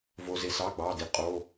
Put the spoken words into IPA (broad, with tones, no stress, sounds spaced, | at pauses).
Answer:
v o˩ z e˩ s ɑ˩˧˩ ɡ͡b ɑ˩˧˩ d i˩ qʼ o˩˧˩